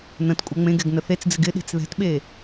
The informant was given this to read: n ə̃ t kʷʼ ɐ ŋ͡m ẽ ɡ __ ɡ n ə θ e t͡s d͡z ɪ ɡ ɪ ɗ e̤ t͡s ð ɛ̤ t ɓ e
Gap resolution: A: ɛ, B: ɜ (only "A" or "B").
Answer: A